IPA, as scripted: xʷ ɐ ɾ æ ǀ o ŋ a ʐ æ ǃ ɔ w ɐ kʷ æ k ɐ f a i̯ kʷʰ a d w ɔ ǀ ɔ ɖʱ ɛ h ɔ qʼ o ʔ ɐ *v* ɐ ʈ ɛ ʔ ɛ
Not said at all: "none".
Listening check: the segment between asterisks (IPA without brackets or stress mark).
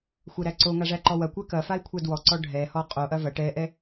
v